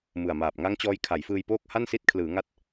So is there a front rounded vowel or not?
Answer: no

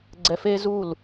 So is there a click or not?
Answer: yes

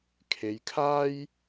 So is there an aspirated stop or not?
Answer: yes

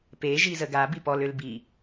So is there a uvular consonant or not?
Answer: no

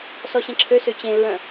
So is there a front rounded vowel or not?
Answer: yes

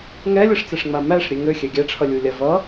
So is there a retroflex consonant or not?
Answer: yes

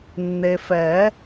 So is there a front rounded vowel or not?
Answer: no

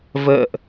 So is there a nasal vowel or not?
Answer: no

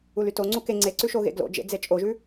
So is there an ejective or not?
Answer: yes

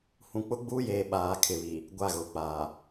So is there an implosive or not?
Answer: yes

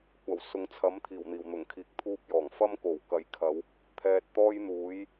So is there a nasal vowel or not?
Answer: no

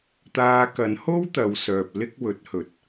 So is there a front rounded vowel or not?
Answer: yes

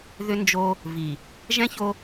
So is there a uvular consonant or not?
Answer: no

